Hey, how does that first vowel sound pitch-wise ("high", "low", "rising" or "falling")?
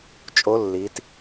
rising